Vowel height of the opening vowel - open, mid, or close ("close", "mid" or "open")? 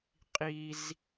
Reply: close